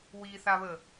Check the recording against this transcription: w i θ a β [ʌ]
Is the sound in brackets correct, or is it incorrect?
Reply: incorrect